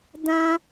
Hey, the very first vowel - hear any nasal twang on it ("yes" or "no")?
yes